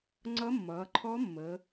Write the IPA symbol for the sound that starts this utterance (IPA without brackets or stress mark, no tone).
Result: ŋ͡ǀ